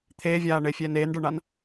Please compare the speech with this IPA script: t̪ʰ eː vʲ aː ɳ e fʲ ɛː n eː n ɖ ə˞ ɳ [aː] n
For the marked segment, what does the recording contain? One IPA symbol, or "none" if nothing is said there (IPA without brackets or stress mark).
a